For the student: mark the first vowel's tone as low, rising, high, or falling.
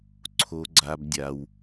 high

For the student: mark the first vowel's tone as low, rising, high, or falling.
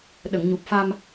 low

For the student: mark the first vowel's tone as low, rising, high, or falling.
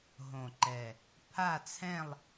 low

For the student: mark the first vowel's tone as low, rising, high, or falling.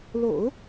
low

